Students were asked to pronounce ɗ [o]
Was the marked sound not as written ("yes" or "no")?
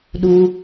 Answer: yes